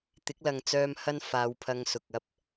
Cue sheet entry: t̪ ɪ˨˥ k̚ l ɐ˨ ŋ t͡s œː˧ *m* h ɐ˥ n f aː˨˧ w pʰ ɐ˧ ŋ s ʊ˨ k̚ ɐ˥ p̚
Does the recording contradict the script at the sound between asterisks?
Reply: no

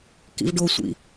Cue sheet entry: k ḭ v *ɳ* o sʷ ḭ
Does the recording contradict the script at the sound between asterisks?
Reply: yes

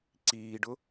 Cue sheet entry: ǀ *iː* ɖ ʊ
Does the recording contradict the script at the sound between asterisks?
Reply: no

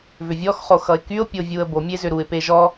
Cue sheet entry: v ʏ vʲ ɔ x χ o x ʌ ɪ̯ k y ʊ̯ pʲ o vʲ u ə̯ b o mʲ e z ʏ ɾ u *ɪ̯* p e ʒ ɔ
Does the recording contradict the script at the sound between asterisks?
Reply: no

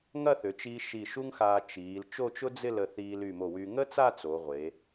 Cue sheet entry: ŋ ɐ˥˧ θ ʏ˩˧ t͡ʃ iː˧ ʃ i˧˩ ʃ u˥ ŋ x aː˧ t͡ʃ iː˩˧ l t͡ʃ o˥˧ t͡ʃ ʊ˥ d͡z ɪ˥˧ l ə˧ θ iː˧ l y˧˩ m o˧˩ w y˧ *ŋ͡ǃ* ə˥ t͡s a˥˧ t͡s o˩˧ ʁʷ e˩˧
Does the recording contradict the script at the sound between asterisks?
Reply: yes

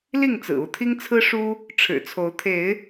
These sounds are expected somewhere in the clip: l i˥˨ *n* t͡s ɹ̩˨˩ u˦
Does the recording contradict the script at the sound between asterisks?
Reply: yes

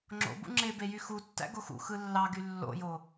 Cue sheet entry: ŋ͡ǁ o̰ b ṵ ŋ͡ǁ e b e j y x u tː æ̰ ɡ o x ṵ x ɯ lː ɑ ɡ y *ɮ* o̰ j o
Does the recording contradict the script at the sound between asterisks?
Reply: yes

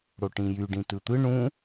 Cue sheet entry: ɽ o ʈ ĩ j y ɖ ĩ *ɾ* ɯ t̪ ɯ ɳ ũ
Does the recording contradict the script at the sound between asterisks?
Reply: yes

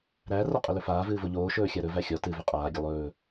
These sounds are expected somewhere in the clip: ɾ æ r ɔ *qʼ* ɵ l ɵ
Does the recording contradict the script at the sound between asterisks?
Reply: no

